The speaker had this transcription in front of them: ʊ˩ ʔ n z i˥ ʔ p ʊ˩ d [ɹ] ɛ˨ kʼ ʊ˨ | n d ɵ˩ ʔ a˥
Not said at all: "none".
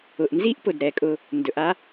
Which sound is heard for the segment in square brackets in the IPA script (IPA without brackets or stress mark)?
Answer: ɾ